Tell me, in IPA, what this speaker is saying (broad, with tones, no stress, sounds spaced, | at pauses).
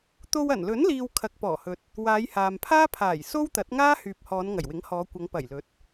t̪ o˧ w ɐ˨˩ n l ɵ˨˥ n l iː˧ w kʰ ɐ˨ k̚ p ɔː˨˩ h ɵ˨ t̚ | w aː˨˧ j h aː˨ m pʰ aː˥ pʰ aː˨˩ j s o˥ w t̪ ɐ˨˥ t̚ ŋ aː˥ h yː˨ p̚ h ɔː˨˧ n ŋ ɐ˨˩ j w ɪ˨˥ ŋ h ɔː˨˧ kʷ ɐ˨˧ ŋ p ɐ˨˩ j l ɵ˨˥ t̚